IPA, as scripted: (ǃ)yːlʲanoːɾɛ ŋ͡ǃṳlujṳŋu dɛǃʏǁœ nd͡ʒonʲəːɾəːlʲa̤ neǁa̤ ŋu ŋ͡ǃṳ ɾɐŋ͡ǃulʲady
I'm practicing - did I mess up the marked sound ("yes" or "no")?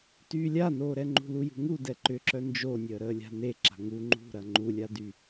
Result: yes